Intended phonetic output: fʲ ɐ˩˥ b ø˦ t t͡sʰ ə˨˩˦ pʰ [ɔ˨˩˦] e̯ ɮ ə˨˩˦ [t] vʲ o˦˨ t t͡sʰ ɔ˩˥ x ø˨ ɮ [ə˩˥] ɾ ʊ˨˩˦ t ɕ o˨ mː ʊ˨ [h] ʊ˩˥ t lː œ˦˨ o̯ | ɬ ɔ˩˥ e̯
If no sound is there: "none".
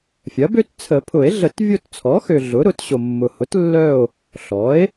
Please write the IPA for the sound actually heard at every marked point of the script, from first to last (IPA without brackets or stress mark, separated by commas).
ʊ˨˩˦, t, ʊ˩˥, h